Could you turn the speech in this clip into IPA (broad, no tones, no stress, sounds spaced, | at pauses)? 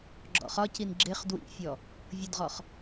ɡ͡ǁ ɔ̰ χ ɒ c i n ɡ͡ǁ ɪ χ d w ḭ fʲ ɔ | vʲ ʊ d ʁ ɔ χ